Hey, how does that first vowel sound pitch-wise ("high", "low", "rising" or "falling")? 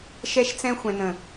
high